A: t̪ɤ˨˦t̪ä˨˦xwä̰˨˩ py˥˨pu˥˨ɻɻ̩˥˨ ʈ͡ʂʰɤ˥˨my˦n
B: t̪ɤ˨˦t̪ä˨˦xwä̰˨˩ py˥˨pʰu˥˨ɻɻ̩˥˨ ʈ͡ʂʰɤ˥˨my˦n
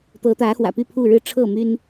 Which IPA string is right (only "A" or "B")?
B